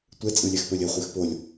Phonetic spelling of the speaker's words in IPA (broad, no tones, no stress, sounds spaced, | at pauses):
tʷ ɛ t͡sʼ ɯ lʲ ɛ x p ɵ lʲ ɘ χʷ e x p o lʲ